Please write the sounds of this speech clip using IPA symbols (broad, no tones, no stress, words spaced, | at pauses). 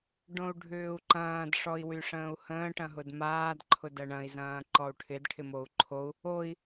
ɖõu̯ɖʱʏːu̯ǃɐ̃ːd ʂɔi̯wyʂə̃ːu̯hə̃ː ʈɐ̃ɦʊdmaːd ǃʰʊdɐɳɐ̃i̯ zɐ̃ːǃɔu̯ʈʰɪd ʈʰɪmou̯ǃʰou̯ | oi̯